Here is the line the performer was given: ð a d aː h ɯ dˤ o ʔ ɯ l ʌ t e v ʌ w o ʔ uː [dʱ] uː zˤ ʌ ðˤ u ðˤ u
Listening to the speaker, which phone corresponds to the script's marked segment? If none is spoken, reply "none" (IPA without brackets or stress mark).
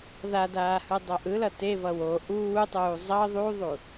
tˤ